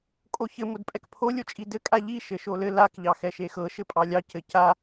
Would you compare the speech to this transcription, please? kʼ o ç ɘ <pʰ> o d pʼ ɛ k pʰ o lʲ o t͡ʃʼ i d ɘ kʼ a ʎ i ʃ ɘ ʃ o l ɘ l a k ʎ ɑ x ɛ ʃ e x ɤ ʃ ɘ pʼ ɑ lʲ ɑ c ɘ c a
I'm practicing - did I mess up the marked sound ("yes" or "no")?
yes